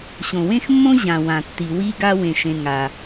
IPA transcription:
ɕ õ˩ w ẽ˥ x mː õ˥ ʑ ã˩ w ã˩ tː i˩ w i˥ ɡ a˥ w ẽ˩ ʃ ẽ˩ ŋ a˩

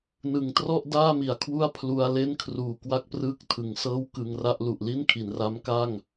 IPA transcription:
n ɯ˩˦ ŋ t r ɔ˥˩ ʔ d aː˥˩ m i˩˦ a̯ kʰ w u˥˩ a̯ pʰ l u˧ a̯ l e˥˩ n kʰ r uː˨˩ k w a˥˩ k̚ p r ɯː˥˩ k̚ tʰ ɯ˨˩ ŋ s ɤː˥˩ w k ɯ˧ ŋ r a˥˩ ʔ l u˨˩ ʔ l i˥˩ n kʰ i˩˦ n r a˦˥ m k a˥˩ ŋ

